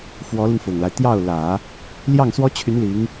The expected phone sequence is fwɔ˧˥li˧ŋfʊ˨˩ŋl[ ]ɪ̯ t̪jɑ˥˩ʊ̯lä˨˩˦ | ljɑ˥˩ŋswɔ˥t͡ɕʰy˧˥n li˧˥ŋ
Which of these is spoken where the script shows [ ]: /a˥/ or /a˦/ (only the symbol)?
a˦